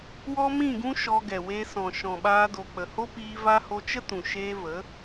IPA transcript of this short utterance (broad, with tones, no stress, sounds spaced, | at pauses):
w ɔ˦ m ĩ˦˨ ɡ ũ˦ ʃ ɔ˧ ɡ ɛ˨ w e˧ s ɔ̃˨ ʃ ɔ̃˨ ɓ aː˧ d o˨ k͡p ə˨ h o˦ p iː˧ v a˧ h o˧ t͡ʃ ə˦ t ũ˨ ʃ eː˧ v ə˨˦